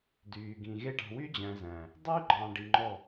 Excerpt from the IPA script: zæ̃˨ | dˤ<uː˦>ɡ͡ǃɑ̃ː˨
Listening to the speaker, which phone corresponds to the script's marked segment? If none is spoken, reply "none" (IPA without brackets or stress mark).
yː˦